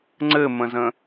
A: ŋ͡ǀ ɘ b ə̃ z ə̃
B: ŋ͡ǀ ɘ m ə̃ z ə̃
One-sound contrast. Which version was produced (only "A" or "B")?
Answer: B